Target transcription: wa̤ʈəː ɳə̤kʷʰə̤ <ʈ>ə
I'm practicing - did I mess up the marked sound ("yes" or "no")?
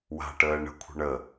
yes